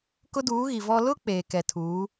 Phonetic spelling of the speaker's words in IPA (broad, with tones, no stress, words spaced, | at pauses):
kʊ˦duː˨˦ɣi˨ vɔ˦ lʊ˦ k͡peː˨ kɛ˨tʰuː˨˦